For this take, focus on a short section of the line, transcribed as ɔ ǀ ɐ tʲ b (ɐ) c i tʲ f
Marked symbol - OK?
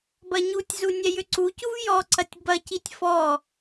yes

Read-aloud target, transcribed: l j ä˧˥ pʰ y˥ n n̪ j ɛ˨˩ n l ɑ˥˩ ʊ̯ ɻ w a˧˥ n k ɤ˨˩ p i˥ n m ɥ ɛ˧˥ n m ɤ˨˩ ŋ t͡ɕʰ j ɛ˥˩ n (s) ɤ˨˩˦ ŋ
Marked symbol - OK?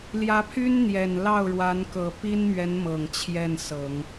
yes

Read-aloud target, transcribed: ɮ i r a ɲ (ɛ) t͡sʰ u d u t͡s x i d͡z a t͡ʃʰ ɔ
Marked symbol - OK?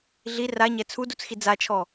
yes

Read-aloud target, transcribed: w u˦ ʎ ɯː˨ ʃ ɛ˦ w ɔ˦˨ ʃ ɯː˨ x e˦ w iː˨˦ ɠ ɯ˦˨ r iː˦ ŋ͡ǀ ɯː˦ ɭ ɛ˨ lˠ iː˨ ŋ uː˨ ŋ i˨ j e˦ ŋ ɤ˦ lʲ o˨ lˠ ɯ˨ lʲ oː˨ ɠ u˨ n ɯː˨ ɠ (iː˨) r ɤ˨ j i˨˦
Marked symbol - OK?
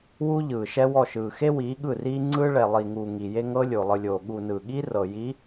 no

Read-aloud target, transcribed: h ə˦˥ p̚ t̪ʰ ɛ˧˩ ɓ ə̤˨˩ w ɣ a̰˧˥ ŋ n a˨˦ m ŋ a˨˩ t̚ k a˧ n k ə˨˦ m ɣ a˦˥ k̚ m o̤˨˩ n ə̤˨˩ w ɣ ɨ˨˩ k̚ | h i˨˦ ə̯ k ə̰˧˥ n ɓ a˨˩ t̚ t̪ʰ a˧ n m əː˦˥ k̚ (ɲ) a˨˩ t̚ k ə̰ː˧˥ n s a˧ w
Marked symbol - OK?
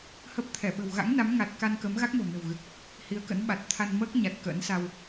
yes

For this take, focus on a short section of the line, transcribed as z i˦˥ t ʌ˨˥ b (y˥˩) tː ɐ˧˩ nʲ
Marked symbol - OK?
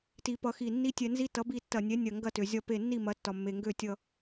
no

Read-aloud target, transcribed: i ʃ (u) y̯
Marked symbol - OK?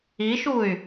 yes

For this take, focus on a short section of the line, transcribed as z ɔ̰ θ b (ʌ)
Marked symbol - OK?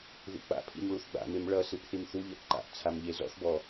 no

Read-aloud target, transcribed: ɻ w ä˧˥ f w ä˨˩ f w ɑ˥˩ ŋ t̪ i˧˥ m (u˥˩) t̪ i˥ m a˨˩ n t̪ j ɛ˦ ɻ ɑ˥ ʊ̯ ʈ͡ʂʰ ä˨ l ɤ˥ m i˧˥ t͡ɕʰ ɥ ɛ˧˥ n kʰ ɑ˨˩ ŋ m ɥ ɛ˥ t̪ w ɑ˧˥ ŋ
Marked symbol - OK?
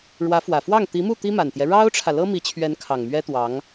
yes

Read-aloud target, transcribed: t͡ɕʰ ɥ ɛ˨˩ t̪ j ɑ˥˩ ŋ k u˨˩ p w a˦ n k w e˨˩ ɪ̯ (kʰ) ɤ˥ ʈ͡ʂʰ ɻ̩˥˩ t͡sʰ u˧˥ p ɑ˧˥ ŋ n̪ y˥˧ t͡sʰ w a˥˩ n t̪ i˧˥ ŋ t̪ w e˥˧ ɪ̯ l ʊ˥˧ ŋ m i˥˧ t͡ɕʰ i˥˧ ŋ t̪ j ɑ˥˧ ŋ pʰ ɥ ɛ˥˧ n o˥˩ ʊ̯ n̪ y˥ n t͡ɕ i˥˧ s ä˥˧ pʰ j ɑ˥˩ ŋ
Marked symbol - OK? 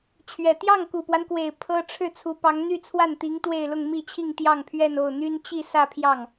no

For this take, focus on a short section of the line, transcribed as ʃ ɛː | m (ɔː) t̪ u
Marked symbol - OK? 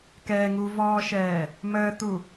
no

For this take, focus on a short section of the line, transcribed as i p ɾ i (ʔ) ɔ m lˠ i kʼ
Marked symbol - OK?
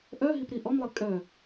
yes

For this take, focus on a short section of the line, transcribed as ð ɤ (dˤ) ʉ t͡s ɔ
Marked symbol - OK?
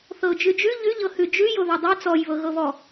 yes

